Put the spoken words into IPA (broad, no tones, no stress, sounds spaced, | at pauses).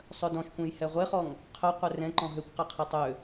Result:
sˤ œ d ɔ̃ ʃ kʷ ɛ̃ j h ɛ ʁʷ e χ ɔ ŋ | qʰ œ qʷ œ r ɛ̃ ǃ ɔ̃ ɦ ø kʷ q ɛ qʰ e tˤ ø